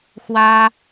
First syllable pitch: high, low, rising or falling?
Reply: high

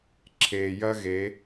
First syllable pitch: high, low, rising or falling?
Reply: low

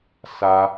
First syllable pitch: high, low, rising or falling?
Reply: high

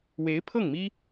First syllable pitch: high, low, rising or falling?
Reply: rising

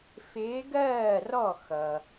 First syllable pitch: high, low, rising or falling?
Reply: rising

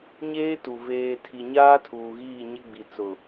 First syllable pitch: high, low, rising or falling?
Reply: high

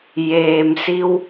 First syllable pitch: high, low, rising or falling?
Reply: low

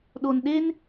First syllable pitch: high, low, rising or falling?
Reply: low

